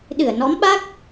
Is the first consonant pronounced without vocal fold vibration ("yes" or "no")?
no